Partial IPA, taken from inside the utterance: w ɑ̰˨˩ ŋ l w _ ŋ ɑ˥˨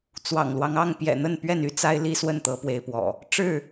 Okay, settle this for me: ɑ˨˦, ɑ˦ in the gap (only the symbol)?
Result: ɑ˦